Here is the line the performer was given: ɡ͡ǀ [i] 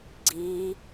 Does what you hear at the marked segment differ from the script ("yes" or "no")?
no